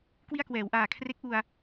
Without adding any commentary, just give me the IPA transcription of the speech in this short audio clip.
k w i˥˩ a̯ k w ɛː˩˦ w ʔ aː˨˩ kʰ r e˦˥ k̚ ʔ u˨˩ a̯

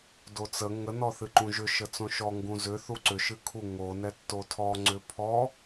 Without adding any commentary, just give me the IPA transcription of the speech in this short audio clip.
d o t͡s ə ŋ ə n ɔ θ ɨ ǃ ũ ʒ ʏ ʃ ə t͡s õ ʃ ɔ ŋ ɡ ũ z ʏ θ u ǀ ʏ ʃ ɨ kʰ u ŋ o n ɛ tː o tʰ ɔ ŋ͡ǀ ʏ pʰ ɔ

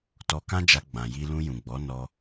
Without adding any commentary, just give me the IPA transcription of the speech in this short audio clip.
t ɔ˧ k ã˦ d͡ʒ a˧ ɡ͡b ã˨ j i˧ l ũ˧ j ũ˨ ɡ͡b ɔ˨˦ n ɔ˧

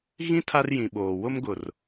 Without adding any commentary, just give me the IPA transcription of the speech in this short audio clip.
ɣ ĩ˦ tʰ a˦ r j ĩ˨ ɓ oː˨ w ʊ˦ m ɡ ʊ˨ r

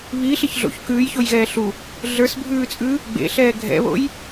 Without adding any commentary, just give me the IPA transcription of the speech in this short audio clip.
β i ɬ i ç ɮ o̰ ç k ʉː j ç o j ɣ ɛː ɬ u | ɮ ə˞ s bʱ ʉː t͡sʼ ʉː | ɡ͡b ḛ ɬ ɛː ɡʱ ɛ̰ β o̰ j

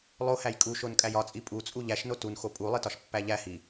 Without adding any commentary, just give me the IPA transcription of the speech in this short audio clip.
lˠ o h æ j kʼ u ʃ o n kʼ æ j ɒ t͡sʼ i pʼ u t͡sʼ u ʎ æ ʃ n o t u n x o pʼ u lˠ i t ɒ ʃ pː æ ʎ æ h i

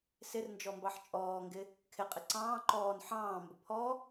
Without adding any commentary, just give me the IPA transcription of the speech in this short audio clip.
s ɪ r n d͡ʒ ɔ m b ɑ ħ t͡ʃʼ ɔː ŋ ɡ ɪ | kʰ ɪ qʼ ɪ ǀ ɑ̃ː ǃ ɔː n ħ ɑ̃ː m b ʊ pʰ ɔ

